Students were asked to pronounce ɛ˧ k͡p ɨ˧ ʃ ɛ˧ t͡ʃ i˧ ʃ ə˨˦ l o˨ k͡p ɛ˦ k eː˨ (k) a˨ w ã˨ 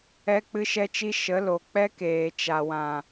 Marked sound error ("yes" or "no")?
yes